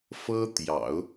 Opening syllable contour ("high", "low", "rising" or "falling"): high